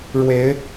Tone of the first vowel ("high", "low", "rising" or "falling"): rising